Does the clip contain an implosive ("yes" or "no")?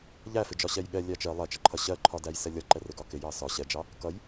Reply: yes